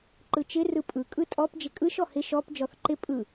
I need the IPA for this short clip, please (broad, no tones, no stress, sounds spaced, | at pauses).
ǃ ɯ t͡ʃ ɪ r ɯ pʼ ɯ kʼ ɯ tʼ ɔ p d͡ʒ ɪ kʼ ɯ ʃ ɔ h ɪ ʃ ɔ p d͡ʒ ɔ θ ǃ ɪ pʼ ɯ